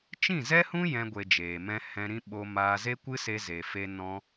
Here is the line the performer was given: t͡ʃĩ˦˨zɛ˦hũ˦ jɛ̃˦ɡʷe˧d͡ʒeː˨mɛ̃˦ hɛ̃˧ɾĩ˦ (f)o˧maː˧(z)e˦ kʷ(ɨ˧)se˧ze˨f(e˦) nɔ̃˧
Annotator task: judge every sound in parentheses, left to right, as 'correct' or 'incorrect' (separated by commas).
incorrect, correct, incorrect, incorrect